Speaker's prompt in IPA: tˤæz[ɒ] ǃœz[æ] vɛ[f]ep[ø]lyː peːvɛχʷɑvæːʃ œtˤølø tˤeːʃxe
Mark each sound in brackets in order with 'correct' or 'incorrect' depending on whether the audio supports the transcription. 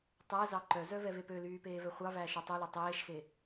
incorrect: ɑ, incorrect: œ, incorrect: v, correct

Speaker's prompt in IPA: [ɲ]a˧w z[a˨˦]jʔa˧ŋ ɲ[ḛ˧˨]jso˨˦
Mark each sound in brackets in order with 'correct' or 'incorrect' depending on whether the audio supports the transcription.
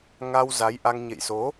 incorrect: ŋ, correct, correct

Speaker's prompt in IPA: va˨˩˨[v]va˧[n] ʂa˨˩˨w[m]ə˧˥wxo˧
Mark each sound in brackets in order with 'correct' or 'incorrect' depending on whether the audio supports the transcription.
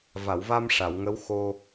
incorrect: w, incorrect: m, incorrect: ŋ

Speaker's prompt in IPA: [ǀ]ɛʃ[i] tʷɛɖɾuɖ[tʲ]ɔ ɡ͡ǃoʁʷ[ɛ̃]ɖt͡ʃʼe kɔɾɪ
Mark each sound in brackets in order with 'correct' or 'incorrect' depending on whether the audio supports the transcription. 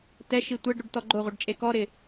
incorrect: t, correct, incorrect: t, incorrect: ɛ

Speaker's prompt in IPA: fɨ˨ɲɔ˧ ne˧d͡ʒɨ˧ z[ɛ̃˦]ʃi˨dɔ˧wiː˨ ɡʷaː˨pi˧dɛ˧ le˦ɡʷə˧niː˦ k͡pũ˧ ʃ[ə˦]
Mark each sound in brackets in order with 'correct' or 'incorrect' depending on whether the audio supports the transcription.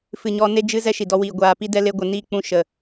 incorrect: ɛ˦, incorrect: ə˨

